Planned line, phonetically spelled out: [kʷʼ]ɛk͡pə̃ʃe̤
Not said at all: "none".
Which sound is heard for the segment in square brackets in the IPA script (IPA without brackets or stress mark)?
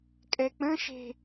kʼ